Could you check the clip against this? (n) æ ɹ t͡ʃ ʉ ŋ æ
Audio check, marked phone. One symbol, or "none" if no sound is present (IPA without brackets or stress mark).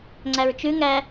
ŋ͡ǀ